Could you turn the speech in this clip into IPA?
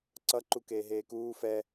ǀ ʌ ǃ u k eː ɦ eː k uː f ɛ

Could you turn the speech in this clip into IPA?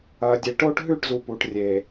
ɐː˨ dʲ e˨ ʈ o˦ ʈ ɦ ʉ˦˨ ʈ z u˨ p uː˨ ʈ rʲ eː˨

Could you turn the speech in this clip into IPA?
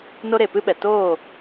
n o˦ ɾ e˨ p ɨ˦ ɓ ɛ˨ t oː˦˨

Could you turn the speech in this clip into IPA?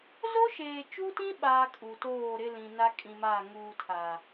z o˦ ʃ eː˨ t͡ʃ u˦ t ĩ˦ ɓ aː˦ kʼ u˨ t oː˦˨ ɾ ɪ˦ l ĩ˨ n a˦ kʼ ĩ˨ m aː˦˨ ŋ uː˨ tʰ aː˨

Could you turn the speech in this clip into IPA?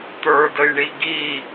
t̪ ə˞ d ə j ɳ i ɡ i

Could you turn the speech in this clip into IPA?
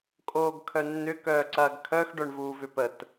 kʼ oː ɡ kʰ œ nː ʏ k œː ǀ ɐː ɡ kʰ œ x ɖ œ ɳ v uː v ʏ p ə t

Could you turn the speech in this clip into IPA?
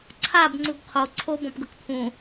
ǀʰ a b ŋ͡ǀ u ɡ qʰ o ǀʰ o b ɔ̃ p ɡ ɤ k pʰ ũ

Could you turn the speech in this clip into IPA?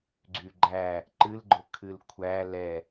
ɡ͡ǀ y ɡ͡ǃ æ | ǃ ɨ l ɡ͡ǃ ʊ kʰ ɨ l kʷʰ æ l ɛ

